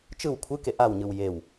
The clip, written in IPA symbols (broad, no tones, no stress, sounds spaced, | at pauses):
t͡ʃ ɯ w kʷʰ ɯ k e ʔ a w ɲ ɯ w j e w